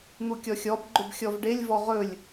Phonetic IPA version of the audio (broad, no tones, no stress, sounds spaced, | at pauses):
n̪ u kʲ ɔ xʲ ɔ b ɡ͡ǃ ʊ b xʲ ɔ v ɖ e lʲ v ɔ ʁ ɵ lʲ